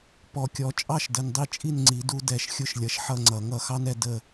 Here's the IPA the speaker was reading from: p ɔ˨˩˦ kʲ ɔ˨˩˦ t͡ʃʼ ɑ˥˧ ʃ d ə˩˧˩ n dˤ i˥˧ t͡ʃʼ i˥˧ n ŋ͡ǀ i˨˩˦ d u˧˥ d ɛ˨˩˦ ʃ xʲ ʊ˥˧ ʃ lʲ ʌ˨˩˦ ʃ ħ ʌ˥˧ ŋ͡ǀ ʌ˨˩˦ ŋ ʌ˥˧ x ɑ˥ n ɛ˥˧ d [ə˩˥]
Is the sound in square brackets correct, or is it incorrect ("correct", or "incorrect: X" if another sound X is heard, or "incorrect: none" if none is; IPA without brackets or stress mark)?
incorrect: ə˥˧